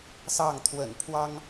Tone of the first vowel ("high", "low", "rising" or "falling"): falling